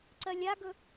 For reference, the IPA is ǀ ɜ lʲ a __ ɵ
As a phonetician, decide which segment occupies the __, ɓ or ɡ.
ɡ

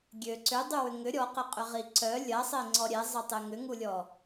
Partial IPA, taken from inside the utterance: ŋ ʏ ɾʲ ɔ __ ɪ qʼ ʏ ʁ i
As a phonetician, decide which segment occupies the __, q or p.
q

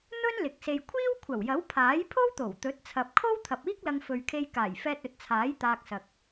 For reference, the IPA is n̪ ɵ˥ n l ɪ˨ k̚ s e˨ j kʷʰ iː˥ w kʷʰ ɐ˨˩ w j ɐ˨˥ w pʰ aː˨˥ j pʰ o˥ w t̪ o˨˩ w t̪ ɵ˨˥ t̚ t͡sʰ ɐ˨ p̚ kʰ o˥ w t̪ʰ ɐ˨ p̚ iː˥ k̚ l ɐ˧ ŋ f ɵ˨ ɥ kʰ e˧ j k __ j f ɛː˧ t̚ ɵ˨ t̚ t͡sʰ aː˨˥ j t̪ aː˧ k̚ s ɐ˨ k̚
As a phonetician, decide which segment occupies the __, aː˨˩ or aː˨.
aː˨˩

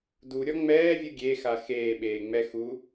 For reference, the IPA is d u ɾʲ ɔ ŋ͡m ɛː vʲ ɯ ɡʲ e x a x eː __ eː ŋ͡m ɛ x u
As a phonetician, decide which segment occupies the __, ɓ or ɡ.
ɓ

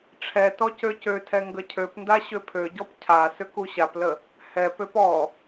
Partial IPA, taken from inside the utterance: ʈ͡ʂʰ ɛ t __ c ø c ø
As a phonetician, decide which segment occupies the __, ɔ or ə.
ɔ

